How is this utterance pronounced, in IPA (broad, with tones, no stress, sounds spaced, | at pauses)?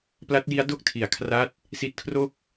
p l a˦˥ t̚ j i˦˥ a̯ d o˥˩ k̚ tʰ i˩˦ a̯ kʰ r a˦˥ t̚ | s i˦˥ t̚ kʰ r o˥˩ k̚